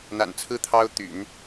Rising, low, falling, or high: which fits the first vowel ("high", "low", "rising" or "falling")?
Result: low